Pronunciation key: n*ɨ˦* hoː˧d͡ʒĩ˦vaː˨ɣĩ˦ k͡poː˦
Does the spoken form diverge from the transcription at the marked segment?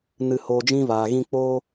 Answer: yes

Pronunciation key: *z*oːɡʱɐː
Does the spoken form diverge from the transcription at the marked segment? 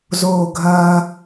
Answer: no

